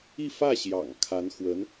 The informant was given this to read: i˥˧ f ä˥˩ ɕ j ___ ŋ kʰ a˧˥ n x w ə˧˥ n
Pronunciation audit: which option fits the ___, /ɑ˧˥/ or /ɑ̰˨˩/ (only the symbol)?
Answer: ɑ̰˨˩